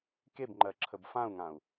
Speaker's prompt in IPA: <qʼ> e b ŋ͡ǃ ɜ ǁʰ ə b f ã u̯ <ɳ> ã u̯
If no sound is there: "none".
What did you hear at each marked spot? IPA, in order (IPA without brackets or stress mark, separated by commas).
k, ŋ